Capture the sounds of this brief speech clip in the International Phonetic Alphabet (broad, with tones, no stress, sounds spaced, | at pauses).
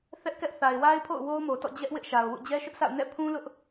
θ ɛ˦ ʔ k ɛ˦ ʔ θ a˨ ɪ̯ w a˦ ɪ̯ pʰ o̰˦˨ ʊ̯ w o˦ ʊ̯ m o˨ t ɔ̰˦˨ d͡ʑ ɛ˦ ʔ w ɪ˦ ʔ ʃ a˨ ʊ̯ w ṵ˦˨ d͡ʑ ɛ˦ ʃ ʊ˦ ʔ s a̰˦˨ ʊ̯ n ɛ̰˦˨ pʰ ũ˦ l ʊ˦ ʔ